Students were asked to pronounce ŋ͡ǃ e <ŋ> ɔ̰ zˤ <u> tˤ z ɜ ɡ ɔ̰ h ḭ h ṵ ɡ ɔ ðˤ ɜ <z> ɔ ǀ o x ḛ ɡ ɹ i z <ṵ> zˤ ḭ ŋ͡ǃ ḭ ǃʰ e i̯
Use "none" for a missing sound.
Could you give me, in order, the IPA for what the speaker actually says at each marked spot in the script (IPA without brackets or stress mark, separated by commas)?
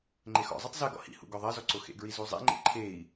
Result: x, u, z, u